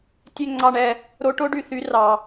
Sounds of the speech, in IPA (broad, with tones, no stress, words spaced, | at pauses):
tʲø˥˨ŋ͡ǀɑ˥˨ɳɛ˥˨ | ɾo˧˥ʈo˧˥ɖy˨ θy˧˥rɑ˨